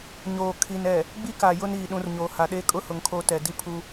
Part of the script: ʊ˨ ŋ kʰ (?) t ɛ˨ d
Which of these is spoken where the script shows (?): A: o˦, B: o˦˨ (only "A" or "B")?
B